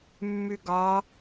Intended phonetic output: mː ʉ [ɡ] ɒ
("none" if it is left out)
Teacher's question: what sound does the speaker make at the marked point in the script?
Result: ɡ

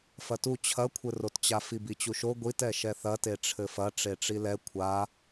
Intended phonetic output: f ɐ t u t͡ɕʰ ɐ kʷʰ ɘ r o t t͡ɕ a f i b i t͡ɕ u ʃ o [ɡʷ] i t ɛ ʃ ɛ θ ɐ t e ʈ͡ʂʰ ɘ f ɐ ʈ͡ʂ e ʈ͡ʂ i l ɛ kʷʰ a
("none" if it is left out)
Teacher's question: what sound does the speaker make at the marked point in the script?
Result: ɡʷ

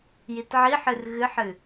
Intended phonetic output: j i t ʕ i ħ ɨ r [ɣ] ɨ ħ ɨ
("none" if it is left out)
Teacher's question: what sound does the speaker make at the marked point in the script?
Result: ɣ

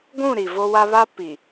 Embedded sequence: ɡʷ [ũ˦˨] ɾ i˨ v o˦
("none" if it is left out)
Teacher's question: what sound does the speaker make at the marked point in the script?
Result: ũ˦˨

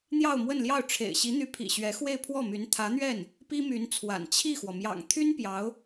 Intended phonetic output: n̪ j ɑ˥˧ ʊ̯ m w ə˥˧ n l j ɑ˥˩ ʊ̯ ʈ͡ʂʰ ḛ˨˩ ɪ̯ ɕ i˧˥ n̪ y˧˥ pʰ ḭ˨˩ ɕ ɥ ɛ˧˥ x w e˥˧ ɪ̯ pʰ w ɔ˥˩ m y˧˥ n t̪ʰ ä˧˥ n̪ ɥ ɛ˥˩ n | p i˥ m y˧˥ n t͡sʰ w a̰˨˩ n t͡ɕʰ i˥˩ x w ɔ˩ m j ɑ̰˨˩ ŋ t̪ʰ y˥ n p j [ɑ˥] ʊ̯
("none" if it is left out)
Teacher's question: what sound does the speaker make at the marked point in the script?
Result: ɑ˧˥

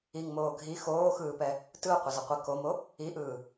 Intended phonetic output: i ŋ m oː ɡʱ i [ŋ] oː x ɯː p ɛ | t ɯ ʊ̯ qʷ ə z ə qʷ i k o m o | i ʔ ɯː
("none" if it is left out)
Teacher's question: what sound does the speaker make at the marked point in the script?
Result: x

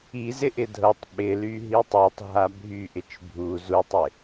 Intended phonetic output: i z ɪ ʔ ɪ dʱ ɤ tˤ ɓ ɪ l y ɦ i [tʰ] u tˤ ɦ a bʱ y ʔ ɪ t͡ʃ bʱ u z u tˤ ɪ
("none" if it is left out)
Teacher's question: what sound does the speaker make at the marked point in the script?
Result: tˤ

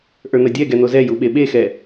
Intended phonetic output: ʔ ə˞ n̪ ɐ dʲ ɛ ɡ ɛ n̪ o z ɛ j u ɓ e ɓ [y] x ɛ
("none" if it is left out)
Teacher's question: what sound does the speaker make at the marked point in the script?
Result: e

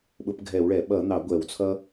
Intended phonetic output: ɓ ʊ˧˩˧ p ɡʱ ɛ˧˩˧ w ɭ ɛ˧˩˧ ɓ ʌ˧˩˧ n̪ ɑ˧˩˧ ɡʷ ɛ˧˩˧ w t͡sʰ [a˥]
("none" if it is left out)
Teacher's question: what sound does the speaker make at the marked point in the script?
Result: ʌ˥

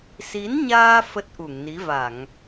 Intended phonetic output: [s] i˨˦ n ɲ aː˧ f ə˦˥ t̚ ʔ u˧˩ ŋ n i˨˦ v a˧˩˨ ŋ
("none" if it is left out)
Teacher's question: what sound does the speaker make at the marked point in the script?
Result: s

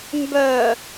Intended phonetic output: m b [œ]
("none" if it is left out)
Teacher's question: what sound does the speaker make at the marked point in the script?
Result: œ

